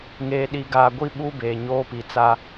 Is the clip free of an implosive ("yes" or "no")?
no